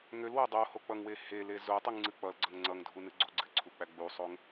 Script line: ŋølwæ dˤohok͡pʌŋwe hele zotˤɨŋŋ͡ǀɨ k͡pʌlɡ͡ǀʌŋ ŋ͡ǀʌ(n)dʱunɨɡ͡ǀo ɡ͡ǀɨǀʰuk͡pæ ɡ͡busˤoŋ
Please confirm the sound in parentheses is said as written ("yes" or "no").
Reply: no